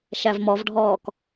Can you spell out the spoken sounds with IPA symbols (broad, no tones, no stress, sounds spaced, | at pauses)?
ʃ æ v m ɔ v ɖʱ ɔː k